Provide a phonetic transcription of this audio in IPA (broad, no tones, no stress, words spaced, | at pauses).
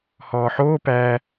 hɔːħoː pæ